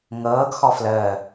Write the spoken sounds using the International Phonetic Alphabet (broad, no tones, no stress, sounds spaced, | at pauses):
ŋ ɤː ɡ x ɔ f l əː